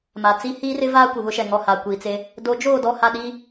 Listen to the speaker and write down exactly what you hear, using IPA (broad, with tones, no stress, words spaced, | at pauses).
ma˨t͡si˦ hiː˦rɪ˦vaː˦ kʷɪ˨βʊ˦ʃɛ˨ ŋɔ˨ ha˨kʷi˨t͡se˦ | do˨˦d͡ʒoː˦˨ dɔ˦˨ha˦˨ɗiː˦